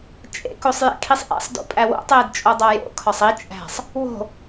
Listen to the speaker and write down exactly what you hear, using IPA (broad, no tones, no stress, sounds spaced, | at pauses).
t͡ʃʼ ḛ k o sˤ j ḛ kʰ i sˤ ʔ ḛ sˤ d o̰ pʼ æ w o̰ tˤ eː d t͡ʃʼ o dˤ æ j o̰ kʰ ɒ sˤ i t͡ʃʼ æ̤ sˤ | w o̤